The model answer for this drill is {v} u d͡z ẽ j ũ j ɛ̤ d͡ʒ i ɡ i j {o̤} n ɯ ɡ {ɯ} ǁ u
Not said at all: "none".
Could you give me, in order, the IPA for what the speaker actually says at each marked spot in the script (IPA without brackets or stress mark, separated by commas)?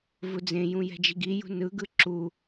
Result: v, ṳ, ɯ